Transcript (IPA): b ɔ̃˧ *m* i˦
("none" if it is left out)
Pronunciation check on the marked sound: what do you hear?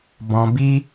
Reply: b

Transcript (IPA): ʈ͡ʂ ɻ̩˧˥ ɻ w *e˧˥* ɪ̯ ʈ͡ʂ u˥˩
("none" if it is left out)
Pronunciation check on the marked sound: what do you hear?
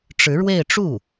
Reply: e˥˧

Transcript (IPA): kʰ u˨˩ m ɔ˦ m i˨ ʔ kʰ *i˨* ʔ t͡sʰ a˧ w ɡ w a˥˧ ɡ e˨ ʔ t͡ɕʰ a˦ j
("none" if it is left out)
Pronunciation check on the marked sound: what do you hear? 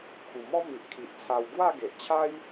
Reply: i˨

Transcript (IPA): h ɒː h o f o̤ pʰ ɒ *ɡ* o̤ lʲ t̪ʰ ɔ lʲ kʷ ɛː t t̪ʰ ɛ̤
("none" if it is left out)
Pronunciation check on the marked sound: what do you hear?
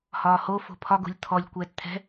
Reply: ɡ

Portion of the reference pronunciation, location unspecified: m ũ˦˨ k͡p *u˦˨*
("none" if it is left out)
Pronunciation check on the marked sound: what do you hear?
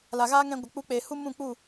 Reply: u˦˨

